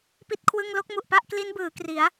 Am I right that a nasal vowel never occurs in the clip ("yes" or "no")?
yes